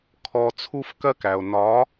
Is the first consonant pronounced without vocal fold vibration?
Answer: yes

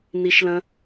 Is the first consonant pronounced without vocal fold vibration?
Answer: no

